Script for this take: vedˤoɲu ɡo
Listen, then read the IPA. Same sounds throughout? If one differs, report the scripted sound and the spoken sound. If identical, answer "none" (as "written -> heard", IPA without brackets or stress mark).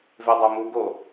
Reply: ɲ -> m